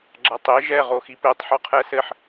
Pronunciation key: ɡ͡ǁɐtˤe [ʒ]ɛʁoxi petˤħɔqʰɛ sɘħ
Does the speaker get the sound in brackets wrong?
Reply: no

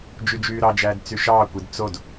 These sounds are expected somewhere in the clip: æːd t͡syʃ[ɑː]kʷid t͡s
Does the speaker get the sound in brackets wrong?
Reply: no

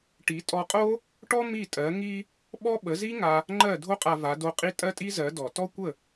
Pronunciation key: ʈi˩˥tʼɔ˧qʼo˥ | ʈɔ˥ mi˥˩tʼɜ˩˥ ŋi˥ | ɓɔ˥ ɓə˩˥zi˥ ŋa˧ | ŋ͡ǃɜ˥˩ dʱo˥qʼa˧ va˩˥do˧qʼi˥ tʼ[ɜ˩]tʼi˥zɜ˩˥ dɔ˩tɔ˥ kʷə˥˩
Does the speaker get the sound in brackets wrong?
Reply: yes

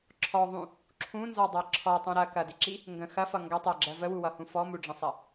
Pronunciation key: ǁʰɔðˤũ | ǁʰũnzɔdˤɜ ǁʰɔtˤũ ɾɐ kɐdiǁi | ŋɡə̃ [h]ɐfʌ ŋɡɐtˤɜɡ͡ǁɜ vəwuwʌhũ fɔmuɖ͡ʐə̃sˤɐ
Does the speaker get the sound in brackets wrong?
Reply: yes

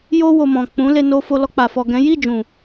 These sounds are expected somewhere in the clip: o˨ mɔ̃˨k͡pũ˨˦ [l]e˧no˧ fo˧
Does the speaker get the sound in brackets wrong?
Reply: no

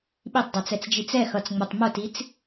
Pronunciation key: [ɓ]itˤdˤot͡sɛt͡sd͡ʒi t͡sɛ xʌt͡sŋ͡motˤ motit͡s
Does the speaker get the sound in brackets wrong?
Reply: no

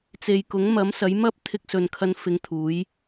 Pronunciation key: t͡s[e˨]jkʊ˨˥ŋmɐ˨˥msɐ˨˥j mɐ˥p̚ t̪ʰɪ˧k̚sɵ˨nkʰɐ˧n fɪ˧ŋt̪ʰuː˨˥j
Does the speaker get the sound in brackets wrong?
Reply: no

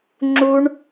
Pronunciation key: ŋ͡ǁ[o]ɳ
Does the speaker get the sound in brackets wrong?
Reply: yes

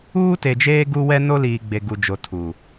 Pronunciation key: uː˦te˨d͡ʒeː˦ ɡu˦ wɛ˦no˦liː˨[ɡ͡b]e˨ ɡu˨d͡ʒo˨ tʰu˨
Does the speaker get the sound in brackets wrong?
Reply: no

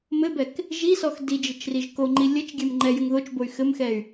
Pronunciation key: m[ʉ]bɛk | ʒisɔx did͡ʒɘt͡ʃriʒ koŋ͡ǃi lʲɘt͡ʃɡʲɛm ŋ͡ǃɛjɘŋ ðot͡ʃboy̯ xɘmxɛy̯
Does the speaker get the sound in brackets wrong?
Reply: yes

